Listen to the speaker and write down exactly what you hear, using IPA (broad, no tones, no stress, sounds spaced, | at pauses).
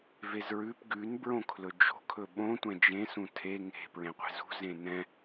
v e z ɹ ʉ p ɡ ʉ n b ɹ õ kʰ l ɵ d͡ʒ o̤ kʰ ɵ ɓ õ tʷ ɛ̃ d͡ʒ ẽ s ũ tʰ e ŋ e̤ p ɹ ẽ qʷ e̤ z ṳ z ẽ n ɛ̃